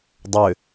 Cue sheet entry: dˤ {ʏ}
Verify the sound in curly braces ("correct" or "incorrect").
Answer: correct